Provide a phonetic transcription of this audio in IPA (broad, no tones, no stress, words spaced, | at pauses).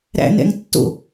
ɾæ̰nɛ̰ŋtːo̰